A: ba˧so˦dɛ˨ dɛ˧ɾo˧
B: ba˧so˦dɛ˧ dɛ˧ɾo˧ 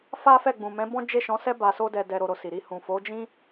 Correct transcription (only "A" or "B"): B